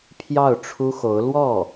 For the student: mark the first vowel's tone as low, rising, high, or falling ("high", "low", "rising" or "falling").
falling